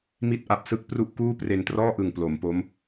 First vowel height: high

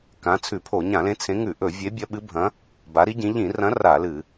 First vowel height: low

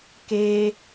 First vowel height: mid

